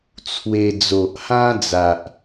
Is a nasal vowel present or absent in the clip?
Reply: present